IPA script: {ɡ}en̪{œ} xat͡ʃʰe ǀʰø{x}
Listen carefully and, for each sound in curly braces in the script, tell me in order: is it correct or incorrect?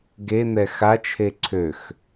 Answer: correct, incorrect: ɛ, correct

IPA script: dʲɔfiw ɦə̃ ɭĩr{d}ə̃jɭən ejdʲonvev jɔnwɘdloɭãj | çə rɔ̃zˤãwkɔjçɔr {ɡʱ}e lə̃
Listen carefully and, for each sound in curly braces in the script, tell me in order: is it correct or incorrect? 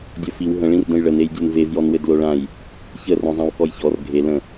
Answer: correct, correct

